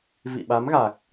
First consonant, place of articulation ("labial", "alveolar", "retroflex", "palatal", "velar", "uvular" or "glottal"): labial